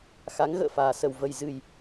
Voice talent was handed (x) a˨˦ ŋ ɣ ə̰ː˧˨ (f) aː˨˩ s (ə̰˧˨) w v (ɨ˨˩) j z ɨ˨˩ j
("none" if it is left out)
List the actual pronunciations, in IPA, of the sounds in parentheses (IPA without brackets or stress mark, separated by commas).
x, f, ə˨˩, ə˨˩